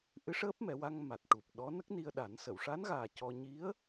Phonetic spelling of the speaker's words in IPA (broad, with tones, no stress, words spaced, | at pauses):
ʔɨ˧˥ʂəː˦˥p̚mɛ˨˩˦wa˧ŋ ma˨˩t̚ʈu˨˩p̚ɗɔ˧˥ nə˦˥k̚ni˧ə̯ɗa˨˩˦nsə˨˩˨w ʂa˧˥nɣaː˨˩ cɔ˧ ɲi˧˥ə̯